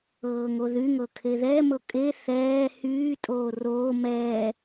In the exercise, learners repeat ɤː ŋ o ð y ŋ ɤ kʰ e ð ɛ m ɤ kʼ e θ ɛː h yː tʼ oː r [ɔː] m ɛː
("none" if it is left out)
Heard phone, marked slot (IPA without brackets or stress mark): oː